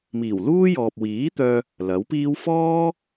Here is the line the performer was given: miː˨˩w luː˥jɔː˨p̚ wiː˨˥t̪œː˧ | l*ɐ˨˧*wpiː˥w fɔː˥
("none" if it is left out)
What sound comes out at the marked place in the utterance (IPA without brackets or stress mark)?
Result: ɐ˨˥